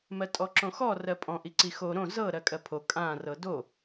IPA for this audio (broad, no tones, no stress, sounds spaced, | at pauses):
m ɜ tʼ ɔ ǁ õ x ɔ r ɜ pʼ ɔ̃ ʔ i ǀ i x o ɾ õ z ɤ ɾ ɜ kʼ ɜ pʰ o kʼ ã r ɤ d o